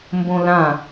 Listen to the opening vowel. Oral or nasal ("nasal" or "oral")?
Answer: nasal